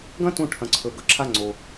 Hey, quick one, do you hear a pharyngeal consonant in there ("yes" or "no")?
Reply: no